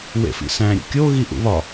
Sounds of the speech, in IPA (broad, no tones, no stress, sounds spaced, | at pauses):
w ḛ f ḭ s æ̃ ɾʲ ṵ kʲ o ɣ i ʔ ṵ β ɒ